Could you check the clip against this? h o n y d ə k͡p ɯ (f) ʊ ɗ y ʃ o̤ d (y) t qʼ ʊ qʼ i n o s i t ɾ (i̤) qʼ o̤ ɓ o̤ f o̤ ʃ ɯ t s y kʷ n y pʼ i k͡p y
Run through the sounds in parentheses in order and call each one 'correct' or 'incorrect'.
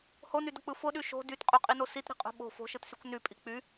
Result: correct, correct, correct

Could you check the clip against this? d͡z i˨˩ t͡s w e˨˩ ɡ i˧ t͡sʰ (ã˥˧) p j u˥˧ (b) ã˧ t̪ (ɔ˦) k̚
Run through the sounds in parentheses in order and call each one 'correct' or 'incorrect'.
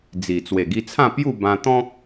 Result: correct, correct, incorrect: ɔ̃˦

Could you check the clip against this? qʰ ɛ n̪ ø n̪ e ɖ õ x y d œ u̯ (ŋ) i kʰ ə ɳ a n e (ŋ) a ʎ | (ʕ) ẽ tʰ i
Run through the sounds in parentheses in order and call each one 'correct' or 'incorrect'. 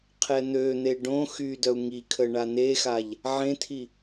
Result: correct, incorrect: x, correct

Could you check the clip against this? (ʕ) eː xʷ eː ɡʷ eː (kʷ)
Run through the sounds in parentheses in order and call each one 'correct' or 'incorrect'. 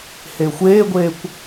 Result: incorrect: h, correct

